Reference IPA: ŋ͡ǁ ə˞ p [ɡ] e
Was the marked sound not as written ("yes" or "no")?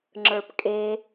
yes